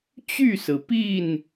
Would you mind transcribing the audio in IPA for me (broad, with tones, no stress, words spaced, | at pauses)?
t͡ɕy˥˨sɹ̩˩pi˥˨n